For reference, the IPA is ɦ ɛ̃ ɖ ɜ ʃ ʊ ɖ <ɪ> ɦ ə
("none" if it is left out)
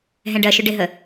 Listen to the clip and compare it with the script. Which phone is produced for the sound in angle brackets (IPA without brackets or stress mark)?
ɪ